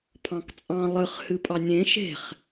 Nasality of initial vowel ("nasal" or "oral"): nasal